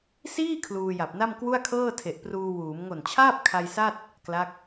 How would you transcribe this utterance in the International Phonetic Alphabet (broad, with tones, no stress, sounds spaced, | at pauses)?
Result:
s iː˥˩ kʰ l uː˧ j a˨˩ p̚ n a˥˩ m k w u˥˩ a̯ kʰ ɤː˥˩ tʰ e˨˩ ʔ p r uː˧ w uː˩˦ m ŋ o˨˩ n t͡ɕʰ aː˥˩ p̚ kʰ a˧ j s a˥˩ t̚ | k l a˦˥ k̚